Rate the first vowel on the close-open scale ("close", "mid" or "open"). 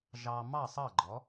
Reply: open